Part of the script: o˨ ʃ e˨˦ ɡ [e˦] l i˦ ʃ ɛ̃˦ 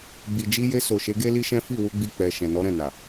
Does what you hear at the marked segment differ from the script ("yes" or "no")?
no